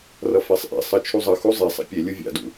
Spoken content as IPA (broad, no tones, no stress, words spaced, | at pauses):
rʌfɛsˤʔḛsˤʌ t͡ʃʰuzˤʌxu zˤesˤɛ̰ pʲelʲu vʲa̰dṵ